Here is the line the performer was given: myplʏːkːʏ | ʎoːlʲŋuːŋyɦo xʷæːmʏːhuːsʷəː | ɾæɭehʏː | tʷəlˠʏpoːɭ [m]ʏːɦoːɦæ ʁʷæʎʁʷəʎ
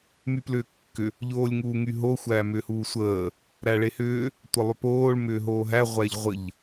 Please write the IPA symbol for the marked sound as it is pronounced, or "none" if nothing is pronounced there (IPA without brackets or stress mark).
m